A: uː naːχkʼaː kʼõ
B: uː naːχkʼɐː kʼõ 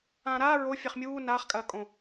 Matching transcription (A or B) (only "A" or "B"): B